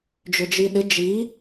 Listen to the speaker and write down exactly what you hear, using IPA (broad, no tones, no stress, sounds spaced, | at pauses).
d͡ʒ ʏ d͡ʒ i ɗ ɪ d͡ʒ i